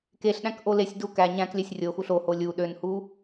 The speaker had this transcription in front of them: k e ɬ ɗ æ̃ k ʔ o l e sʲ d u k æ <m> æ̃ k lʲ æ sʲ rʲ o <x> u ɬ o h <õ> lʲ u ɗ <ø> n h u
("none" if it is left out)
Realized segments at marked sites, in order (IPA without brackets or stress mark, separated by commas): ɲ, x, o, ø